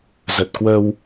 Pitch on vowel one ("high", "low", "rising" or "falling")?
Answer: low